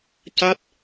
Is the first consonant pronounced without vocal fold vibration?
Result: yes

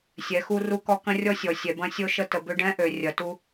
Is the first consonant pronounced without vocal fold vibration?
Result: yes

